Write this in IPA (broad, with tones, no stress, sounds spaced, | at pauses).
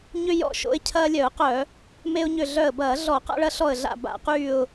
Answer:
ɲ ʏ˦ j ɔ̰˧˩ ʃ o̰˦ ɪ̯ cʰ ɐː˦ lʲ œ˧˩˧ ʊ̯ q œ˧˩˧ | m e˦ ʊ̯ ɲ ʏ˧˩ ɮ œ˧˩ ə̯ b ɐː˧˩˧ ɮ ɔ˧˩˧ q a̰˦ ɭ ɐ˦ ɬ ɔ˧˩ ə̯ ɮ a̰˧˩ b a̰˧˩˧ q yː˧˩ ʊ̯